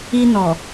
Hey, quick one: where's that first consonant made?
tongue tip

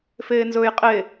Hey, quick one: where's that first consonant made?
lips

